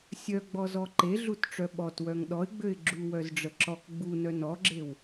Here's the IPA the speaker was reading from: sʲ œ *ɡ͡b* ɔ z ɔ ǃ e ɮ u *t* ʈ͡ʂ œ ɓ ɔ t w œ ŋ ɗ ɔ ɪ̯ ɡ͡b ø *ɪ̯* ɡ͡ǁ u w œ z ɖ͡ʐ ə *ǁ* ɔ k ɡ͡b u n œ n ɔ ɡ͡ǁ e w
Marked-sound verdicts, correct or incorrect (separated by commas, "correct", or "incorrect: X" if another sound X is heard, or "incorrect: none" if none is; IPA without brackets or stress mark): correct, correct, correct, correct